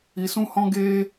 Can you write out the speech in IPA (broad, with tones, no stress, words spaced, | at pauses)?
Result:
i˧sũ˦hɔ̃˦ ɡe˦